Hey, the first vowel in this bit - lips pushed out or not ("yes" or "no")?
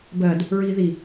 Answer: no